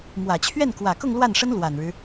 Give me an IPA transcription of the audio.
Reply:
mwä˨˩t͡ɕʰɥɛ˥˩nkwä˨˩kʊ˥˧ŋ lwa˥˩nʂə˥n lwa˨˩nɻɻ̩˦

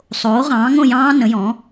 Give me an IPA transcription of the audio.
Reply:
sˤoː˩˥ʁɑ̃ː˩˥ ŋõ˥˨jɑ̃ː˦˥ nə̃˩˥jɔ̃˩˥

